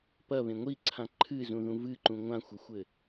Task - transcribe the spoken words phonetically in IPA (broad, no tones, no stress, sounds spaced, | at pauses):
p ɐ β ẽ ŋʷ i ǀʰ ã ǃʰ ɨ z ũ ð ũ v ɨ ǃ ũ ŋʷ ã xʷ ɐ xʷ ɘ